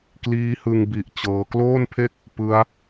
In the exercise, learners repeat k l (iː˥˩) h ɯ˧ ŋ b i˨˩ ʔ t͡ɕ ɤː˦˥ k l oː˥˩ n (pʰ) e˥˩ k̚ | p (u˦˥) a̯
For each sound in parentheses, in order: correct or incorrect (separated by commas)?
incorrect, correct, incorrect